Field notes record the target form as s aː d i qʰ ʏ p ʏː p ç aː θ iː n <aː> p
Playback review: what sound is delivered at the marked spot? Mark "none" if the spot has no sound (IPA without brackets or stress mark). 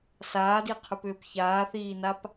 a